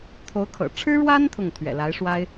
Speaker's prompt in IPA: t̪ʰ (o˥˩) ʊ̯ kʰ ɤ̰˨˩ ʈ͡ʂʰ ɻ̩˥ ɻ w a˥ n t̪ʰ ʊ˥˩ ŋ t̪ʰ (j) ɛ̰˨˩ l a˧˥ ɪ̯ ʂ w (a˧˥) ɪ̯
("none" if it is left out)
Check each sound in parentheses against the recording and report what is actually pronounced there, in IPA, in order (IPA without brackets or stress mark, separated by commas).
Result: o˧˥, ɥ, a˥